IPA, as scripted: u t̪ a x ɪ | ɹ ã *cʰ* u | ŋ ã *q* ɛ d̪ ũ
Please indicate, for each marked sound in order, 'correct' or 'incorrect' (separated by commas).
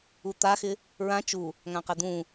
incorrect, correct